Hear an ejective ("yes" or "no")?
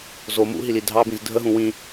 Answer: no